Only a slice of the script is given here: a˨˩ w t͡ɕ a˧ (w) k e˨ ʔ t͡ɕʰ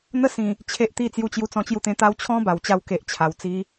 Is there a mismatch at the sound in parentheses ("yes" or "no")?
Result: no